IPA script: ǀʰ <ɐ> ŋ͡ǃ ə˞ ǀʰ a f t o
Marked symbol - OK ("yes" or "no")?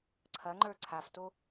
yes